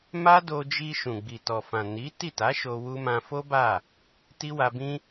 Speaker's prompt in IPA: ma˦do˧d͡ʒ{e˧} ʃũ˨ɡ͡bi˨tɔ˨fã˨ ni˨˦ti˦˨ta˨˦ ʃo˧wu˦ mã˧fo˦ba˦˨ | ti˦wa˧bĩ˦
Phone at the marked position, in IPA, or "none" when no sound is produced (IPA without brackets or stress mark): i˧